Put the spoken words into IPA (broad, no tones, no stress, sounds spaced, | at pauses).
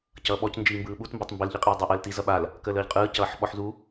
c ʌː ɓ ɔ c n d͡ʒ iː m b ɯː ɓ u t m b ɔ tˤ m b ə l ʎ i qʼ iː dˤ a ʔ əː l t i z ʌ ɓ a l | k əː l əː ʎ qʼ ɯː c ʌː ħ ɓ ɔ ħ z u